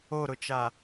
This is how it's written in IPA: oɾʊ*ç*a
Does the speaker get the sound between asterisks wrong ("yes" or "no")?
yes